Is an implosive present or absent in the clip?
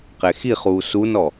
absent